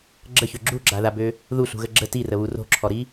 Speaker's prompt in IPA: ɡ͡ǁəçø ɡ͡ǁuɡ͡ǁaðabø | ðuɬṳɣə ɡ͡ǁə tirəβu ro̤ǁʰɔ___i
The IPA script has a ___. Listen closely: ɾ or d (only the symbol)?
ɾ